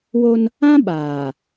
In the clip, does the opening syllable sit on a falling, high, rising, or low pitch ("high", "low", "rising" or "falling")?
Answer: high